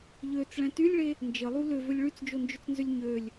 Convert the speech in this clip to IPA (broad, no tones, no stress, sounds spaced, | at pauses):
ʎ ø t͡s ɭ ɛ̃ t y lʲ ɭ e | n d͡ʒ ə lˠ u l ʏ v ʏ lʲ ɭ y t͡s d͡ʒ o n d͡ʒ ʏ t͡s n z ʏ lʲ ɲ ø lʲ